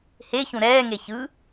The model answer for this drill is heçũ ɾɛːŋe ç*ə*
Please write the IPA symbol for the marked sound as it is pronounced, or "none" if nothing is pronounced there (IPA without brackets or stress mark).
ɯ